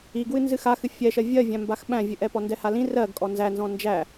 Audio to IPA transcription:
iɡwɨ nzɨxaxɨ fʲɛʃɜ vʲɜvʲæ̃ mbaxɓæ̃vʲɨʔɛ pɔndɛhalĩ rɜɡkʼɔ nzænzɔ̃ nd͡ʒæ

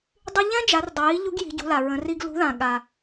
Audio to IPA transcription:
dˤy˧ʎɛ̃˥d͡ʒa˩˧r dˤɪ˩ji˧˥ ʎu˧˥ɡji̤˩˧ɟṳ˩˧la˩ ɹə̃˩˧ri˧ɡ lṳ˧˥ðã˩ ɠa˩

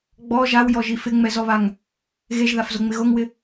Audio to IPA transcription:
ɡ͡bɔ ʒawjɔʒi fɪŋ͡mɛzɔβaŋ | ɣeʒðafzoŋ͡mɪ ɣoŋwɪ

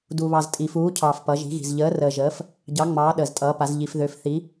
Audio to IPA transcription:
du˨βɑ˨ztʼi˨fuː˨˦ cʰɑː˨fpʌ˨˦ʒi̤˨˦ɣi̤˨z ʎəː˨˦rəː˨ʒəː˨˦f | ɟɑ˨˦ŋ͡mɑː˨˦ ɗəː˨ztʼʌː˨˦pa˨˦z ʎi˨fðø˨˦f θi˨˦

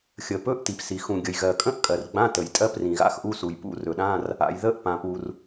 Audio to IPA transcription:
xʲə˩ pɵ˧˥˧ʔti˩psi˩ xũ˩ɡʲə˩jɣɜ˩kʼə̃˧˥˧ʔ kʼɜ˩rɡ͡bã˧˥˧tə˩j tʼɜ˧˥˧prĩ˩ ɣa̰˧˥˧xʔu˧˥˧ su˩jpṵ˧˥˧rɵ˩ɗã˧˥˧r | a̰˩jðə˧˥˧ʔpã˩pu˩r

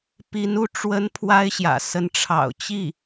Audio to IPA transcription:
pi˧˥nu˥˩ ʈ͡ʂwə˧˥n pʰwa˥ɪ̯ɕjä̰˨˩ sə˧˥n ʈ͡ʂʰɑ̰˨˩ʊ̯ t͡ɕi˥˩

